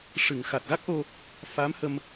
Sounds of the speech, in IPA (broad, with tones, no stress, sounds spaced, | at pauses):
ʂ ɨ˨˩˨ ŋ x a˨˩ t̚ ɣ a˦˥ k̚ ʔ o˧ | f a˧˥ m h ə˧ m